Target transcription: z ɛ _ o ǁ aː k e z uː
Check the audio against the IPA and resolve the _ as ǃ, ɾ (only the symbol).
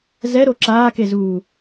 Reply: ɾ